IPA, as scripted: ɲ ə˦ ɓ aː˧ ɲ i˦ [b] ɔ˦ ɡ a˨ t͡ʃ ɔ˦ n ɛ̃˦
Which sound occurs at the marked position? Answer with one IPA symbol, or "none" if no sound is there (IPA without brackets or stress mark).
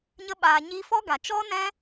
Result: f